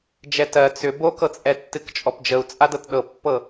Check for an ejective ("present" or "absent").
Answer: present